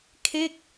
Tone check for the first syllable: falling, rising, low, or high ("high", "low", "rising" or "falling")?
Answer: falling